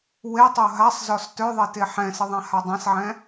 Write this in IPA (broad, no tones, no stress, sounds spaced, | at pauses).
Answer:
w e tˤ o ɦ a sˤ z ɔ s t œ ðˤ e t e ħ ɛ̃ s ə ðˤ ã h a dˤ ã s ʕ ɛ̃